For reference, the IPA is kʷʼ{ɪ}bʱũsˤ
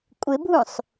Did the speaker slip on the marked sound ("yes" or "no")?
no